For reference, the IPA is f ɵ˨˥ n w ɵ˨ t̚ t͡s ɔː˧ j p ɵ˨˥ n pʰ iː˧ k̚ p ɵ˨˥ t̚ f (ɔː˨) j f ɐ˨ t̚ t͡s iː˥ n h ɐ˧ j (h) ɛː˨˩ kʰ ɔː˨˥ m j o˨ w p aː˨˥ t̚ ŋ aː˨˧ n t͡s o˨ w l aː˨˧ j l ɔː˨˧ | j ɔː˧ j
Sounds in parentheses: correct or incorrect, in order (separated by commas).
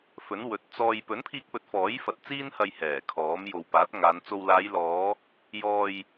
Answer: incorrect, correct